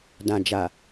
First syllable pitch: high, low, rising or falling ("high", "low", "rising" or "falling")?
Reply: low